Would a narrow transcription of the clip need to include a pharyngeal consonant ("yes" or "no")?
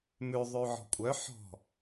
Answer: yes